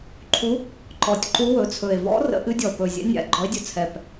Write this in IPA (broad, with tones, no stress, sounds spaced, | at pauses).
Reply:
ǃʰ u˧˥ | ǃ ɔ˨˩ tʲ ǃ u˧˥ w ɵ˨˩ t͡sʰ ɵ˨˩ e̯ v ɔ̰˧˥ r ə̰˧˥ ʔ ɨ˧˥ dʲ ɔ˨˩ p ɵ˨˩ zʲ ɛ̰˧˥ nʲ a̰˨˩ ɡ͡ǃ ɔ˧˥ e̯ dʲ ɵ˨˩ t͡sʰ ɛ˨˩ p